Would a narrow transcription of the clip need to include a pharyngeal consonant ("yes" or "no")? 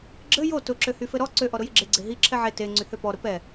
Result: yes